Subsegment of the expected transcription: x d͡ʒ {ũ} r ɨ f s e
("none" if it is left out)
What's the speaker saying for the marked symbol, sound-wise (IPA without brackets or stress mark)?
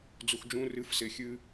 ũ